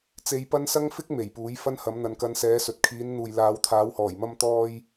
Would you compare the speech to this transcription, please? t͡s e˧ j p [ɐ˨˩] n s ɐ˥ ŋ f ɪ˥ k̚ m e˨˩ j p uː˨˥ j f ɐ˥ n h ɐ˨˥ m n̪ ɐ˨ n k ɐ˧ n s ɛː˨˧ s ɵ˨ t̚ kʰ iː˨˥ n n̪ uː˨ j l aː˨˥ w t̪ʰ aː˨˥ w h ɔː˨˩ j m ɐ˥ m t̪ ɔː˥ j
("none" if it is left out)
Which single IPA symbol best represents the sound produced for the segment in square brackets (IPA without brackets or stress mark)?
ɐ˥